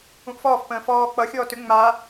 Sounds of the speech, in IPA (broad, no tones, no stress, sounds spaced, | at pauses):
ũ ʔ f ɔː f p ə̃ː f ɔː k͡p ʌ xʲ ɔː t ʏ ŋ͡m a